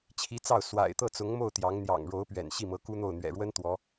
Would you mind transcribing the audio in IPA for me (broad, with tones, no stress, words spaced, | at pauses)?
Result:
t͡ɕʰi˧˥ t͡sɑ˥˩ʊ̯ swa̰˨˩ɪ̯t̪ɤ˥˩t͡sʊ˧˥ŋmo˥˩ʊ̯ t̪jɑ˧˥ŋn̪jɑ̰˨˩ŋ ɻo˧˥ʊ̯pɥɛ̰˨˩n ɕi˥˩mɤ˧˥ku˥n̪o˥˩ʊ̯ n̪ɥɛ̰˨˩ɻwə˥n t̪wɔ˧˥